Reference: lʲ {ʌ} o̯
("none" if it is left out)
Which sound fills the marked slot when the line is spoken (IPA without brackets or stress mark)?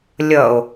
ʌ